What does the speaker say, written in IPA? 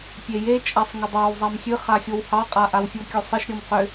pʲ e j e t͡ʃʼ a sˤ ŋ ʏ dˤ ɑ w zˤ a m xʲ ɨ χ a xʲ o w h ɑ qʼ a ʔ a w fʲ o kʲ o sˤ ə ʃ ɾʲ ɔ m q ʏ

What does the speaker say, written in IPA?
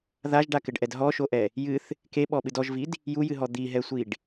ð a ʒ ɖ a k ɘ ɖ ʔ ɛ d ɦ ɔ ʃ o ʔ ɛ | j ɨ θ | k e ɓ ɔ ɓ ɨ d ɔ ʒ v i d | j u j ɨ ɦ ɔ d̪ i ɦ ɛ sʷ i ɖ

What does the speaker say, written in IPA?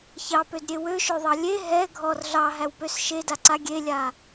ç ɑ p ø d ɾʲ e w ø ʃ ø ðˤ ɑ lʲ e ɦ ɛ ɡʱ ɔ r ɮ ɑ ɦ æ w p ø s ʃ e d a ǀ a ɡʲ e lʲ a

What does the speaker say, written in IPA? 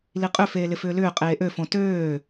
l i qʼ ʏ f eː l ɪ f ʏː l ʏː qʼ eː ʔ ø f õ t øː

